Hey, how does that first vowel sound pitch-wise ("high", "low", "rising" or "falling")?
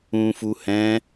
low